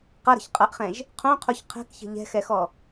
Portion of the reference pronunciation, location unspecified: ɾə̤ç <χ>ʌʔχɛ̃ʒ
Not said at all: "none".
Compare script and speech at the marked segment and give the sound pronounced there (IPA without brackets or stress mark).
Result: qʼ